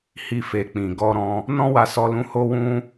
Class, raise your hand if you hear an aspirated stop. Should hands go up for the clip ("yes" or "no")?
no